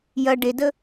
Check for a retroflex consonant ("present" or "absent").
present